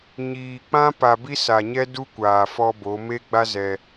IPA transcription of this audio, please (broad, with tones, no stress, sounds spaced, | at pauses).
ɲ iː˨ k͡p ã˦ p a˨ b i˦ s a˨ ɲ ɛ˦ d u˦ kʷ aː˨ f ɔ˦ b o˨˦ m e˦ ɡ͡b a˦ z ɛ˦